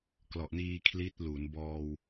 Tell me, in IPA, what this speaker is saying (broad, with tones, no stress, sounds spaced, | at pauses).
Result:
k l ɔ˨˩ ʔ n iː˧ kʰ l i˦˥ t̚ l u˩˦ n b ɔː˧ w